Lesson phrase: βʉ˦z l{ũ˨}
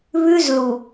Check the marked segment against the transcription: incorrect: u˨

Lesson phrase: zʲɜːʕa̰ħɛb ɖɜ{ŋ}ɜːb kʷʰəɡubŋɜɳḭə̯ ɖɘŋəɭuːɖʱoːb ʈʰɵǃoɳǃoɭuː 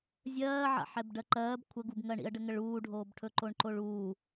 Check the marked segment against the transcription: incorrect: ǃ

